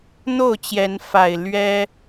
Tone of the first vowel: falling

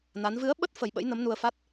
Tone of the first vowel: rising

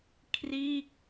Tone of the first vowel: falling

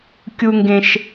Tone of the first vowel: high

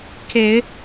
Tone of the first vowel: low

